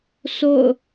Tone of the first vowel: falling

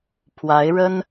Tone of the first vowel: rising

